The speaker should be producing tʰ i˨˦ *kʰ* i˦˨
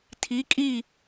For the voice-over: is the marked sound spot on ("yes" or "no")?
no